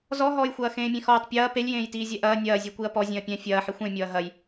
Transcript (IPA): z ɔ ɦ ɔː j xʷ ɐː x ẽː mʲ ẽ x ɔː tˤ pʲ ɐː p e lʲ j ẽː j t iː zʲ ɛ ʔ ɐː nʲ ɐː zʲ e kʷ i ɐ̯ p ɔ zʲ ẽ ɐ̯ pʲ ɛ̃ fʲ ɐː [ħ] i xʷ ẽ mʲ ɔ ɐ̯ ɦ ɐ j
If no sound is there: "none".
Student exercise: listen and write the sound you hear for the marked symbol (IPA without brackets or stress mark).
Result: ħ